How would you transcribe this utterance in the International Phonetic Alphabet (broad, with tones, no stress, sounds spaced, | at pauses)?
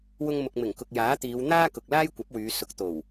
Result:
w ʊ˧ ŋ m ʊ˨ k̚ m ɪ˨˩ ŋ k ʊ˨ k̚ j aː˨˥ t̪ iː˨˧ w n̪ aː˥ k ʊ˨ k̚ l aː˥ j kʷ ɐ˨˥ p̚ w yː˨˧ s ʊ˨˥ k̚ t̪ o˨˩ w